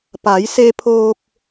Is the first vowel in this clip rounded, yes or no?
no